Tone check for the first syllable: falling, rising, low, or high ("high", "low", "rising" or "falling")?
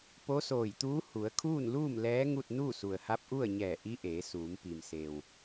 rising